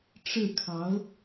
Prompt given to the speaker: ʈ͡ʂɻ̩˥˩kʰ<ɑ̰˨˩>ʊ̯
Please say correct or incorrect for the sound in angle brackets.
incorrect